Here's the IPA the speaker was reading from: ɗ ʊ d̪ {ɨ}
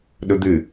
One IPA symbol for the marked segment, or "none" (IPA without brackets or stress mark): ɨ